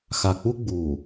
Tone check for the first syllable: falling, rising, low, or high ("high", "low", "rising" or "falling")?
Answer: low